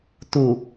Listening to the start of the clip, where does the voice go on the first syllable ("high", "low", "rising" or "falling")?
low